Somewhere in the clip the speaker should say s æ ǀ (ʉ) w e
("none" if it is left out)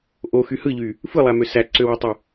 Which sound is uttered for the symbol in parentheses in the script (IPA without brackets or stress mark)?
ø